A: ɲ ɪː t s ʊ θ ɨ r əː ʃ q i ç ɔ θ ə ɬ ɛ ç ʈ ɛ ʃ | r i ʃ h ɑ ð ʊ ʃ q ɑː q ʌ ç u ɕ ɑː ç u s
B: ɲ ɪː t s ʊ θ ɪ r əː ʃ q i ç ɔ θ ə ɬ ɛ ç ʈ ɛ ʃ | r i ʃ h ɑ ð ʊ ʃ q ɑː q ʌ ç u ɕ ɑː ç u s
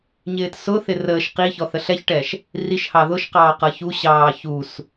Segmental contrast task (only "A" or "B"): B